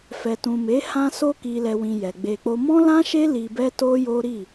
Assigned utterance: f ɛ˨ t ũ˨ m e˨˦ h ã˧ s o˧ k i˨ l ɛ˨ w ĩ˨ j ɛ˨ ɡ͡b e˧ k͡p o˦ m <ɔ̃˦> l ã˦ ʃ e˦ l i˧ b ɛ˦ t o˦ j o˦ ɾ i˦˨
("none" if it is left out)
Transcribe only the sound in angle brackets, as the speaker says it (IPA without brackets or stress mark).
ɔ̃˦